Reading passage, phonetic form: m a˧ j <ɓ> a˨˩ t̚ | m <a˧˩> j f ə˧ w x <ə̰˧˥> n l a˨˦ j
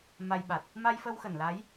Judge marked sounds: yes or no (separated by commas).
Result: yes, no, no